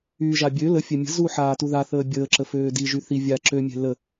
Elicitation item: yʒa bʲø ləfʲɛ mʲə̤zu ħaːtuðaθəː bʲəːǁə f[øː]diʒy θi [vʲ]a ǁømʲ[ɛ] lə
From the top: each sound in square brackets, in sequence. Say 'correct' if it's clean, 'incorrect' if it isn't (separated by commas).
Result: correct, correct, incorrect